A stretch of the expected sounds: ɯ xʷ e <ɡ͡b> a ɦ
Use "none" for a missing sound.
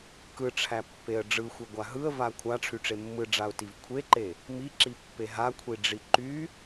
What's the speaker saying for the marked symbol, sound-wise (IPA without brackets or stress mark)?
ɡʷ